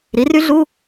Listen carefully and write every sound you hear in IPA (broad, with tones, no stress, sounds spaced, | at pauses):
ɾ i˩˥ r y˦˥ ɮ u˧˥˧